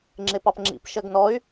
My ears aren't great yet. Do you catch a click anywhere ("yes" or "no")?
yes